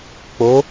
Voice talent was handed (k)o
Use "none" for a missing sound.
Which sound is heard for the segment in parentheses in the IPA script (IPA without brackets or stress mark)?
k͡p